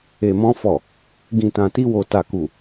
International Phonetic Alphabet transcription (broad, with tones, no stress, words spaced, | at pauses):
e˨mɔ̃˧fɔ˨ | ɡĩ˨tã˨ti˧wo˨ ta˨ku˨